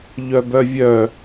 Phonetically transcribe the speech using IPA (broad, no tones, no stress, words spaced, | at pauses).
ʎœbœvʲœ